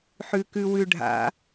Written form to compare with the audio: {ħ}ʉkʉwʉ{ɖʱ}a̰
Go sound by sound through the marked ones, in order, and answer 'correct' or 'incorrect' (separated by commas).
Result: correct, correct